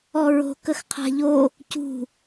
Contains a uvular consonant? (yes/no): yes